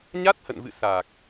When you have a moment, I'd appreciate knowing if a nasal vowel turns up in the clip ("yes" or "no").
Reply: no